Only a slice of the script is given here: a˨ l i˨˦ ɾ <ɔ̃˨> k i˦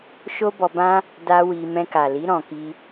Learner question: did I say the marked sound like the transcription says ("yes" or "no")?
no